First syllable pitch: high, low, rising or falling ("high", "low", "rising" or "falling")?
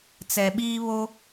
low